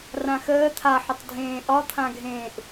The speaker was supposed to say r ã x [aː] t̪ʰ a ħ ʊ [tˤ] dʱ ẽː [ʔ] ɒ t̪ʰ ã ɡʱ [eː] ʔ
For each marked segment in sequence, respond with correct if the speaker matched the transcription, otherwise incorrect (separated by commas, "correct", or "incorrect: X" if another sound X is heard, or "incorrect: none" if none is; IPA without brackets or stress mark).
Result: incorrect: əː, correct, correct, incorrect: ẽː